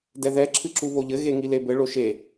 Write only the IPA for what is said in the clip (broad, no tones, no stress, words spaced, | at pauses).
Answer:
dɛðɛ ǁʰɨǁuβoʎɘ ɣeŋilebɘ ɭoʃe